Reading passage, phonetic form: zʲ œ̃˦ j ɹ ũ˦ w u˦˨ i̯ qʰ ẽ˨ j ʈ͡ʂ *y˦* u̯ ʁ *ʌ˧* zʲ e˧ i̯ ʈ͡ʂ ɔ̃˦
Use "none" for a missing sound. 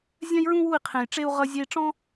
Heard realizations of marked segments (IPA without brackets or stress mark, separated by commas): e˦, ʌ˧